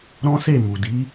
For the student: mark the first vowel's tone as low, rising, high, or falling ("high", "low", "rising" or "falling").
high